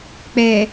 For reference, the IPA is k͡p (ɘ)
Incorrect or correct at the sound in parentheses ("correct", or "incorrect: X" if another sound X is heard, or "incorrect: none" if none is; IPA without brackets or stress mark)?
incorrect: ɛ